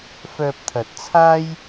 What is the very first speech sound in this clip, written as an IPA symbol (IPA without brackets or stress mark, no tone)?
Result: f